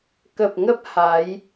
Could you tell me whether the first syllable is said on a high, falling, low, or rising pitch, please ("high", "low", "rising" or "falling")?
low